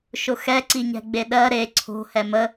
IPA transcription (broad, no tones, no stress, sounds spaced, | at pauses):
ʃ ʊ x ɛ ǀ i ɲ ɛ̤ ɡ͡b e ɗ ɜ ɾ e ǀʰ o̤ h ɛ m ə